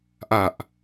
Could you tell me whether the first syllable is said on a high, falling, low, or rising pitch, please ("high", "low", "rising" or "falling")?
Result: low